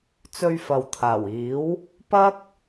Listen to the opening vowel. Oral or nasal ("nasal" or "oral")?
oral